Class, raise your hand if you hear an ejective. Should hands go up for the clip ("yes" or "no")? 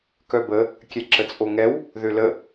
yes